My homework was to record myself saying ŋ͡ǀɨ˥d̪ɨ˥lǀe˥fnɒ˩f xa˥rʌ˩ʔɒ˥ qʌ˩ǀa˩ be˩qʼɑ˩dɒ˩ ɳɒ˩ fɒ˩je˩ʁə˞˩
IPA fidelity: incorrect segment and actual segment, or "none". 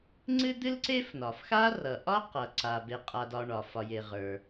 ɑ˩ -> a˩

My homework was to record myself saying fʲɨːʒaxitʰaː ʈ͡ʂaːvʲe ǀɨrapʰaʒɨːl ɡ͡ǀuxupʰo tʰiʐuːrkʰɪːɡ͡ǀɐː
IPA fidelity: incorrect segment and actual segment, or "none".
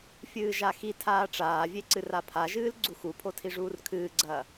ɪː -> ɨː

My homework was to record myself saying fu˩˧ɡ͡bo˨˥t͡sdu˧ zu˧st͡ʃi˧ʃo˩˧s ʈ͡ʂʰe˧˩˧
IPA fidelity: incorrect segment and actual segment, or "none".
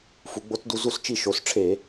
none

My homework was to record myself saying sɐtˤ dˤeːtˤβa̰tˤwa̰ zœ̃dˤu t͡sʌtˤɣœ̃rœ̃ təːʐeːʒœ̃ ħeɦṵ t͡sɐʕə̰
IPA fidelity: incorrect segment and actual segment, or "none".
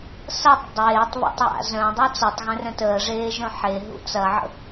none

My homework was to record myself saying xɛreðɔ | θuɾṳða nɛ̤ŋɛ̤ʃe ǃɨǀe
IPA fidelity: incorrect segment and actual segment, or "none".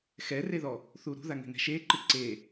n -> ŋ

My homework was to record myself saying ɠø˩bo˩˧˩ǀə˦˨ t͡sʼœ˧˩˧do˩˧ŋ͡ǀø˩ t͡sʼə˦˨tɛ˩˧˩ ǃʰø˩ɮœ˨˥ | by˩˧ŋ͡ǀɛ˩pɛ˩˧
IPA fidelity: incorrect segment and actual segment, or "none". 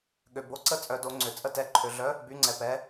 none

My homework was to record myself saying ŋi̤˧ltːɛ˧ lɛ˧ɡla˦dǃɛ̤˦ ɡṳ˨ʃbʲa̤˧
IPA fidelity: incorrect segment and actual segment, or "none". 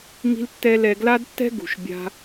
ǃ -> tː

